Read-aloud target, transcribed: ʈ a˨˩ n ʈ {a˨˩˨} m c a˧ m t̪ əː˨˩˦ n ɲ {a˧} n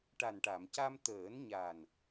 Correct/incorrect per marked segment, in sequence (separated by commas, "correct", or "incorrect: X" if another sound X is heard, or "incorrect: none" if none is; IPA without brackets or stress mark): correct, incorrect: a˨˩